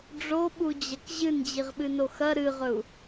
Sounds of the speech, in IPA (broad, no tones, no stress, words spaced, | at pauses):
ɖ͡ʐoɓud͡ʑɐk ʑɨnd͡ʑiʁɓɨno xɐ ɾɨʁɵu̯